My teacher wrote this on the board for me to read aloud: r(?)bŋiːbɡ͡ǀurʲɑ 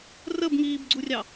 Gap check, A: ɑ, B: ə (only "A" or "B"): B